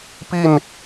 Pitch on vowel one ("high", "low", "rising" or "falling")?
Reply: falling